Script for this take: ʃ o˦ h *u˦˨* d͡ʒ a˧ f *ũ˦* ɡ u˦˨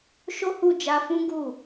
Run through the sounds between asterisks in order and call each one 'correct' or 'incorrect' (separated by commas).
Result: correct, correct